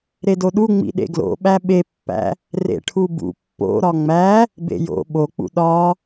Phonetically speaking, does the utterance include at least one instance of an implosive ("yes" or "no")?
yes